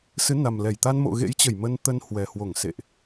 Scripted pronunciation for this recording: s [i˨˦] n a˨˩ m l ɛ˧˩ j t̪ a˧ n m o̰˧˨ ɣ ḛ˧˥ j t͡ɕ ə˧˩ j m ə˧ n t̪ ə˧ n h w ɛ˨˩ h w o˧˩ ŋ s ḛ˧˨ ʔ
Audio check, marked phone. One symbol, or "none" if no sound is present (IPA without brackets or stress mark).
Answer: ɨ˨˦